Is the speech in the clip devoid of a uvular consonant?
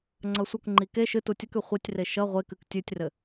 no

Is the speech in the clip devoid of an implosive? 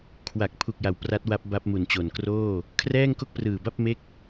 yes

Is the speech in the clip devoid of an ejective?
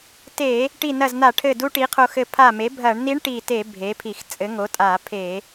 no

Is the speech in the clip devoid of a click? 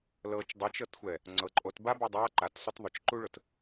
no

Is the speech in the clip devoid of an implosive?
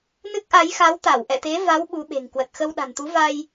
no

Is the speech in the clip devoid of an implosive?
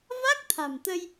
yes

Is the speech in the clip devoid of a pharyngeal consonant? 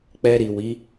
yes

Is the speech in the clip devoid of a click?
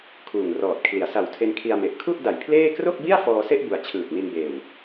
yes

